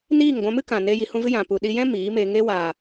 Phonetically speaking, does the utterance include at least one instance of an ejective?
no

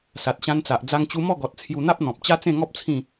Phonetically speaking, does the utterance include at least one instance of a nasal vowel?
yes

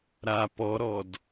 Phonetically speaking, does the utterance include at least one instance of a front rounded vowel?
no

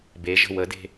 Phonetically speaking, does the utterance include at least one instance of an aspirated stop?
no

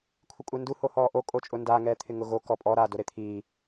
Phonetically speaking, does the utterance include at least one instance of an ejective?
yes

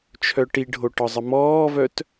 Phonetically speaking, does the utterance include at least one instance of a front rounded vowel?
yes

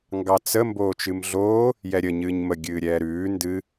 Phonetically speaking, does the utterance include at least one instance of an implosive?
no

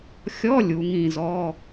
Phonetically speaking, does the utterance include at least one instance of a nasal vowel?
yes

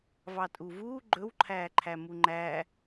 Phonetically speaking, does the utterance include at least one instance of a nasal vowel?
no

